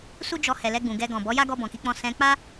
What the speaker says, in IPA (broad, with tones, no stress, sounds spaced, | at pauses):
s u˦ d͡ʒ ɔ˧ h ɛ˨ l ɛ˧ ɡ͡b ũ˨ ɡ ɛ˧ ɡ ɔ̃˨ b ɔ˨˦ j a˦ ɡ ɔ˧ b ɔ̃˨ k i˨˦ k͡p ɔ̃˧ s ɛ̃˧ k͡p a˦